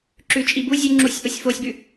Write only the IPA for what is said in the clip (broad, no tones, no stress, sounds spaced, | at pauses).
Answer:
ǁ ʉ t͡ʃʼ i b u zʲ ʉ ŋ͡ǁ u sʲ ʔ o sʲ f o sʲ b ʉ